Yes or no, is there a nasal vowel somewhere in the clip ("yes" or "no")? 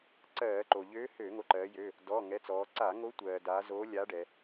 no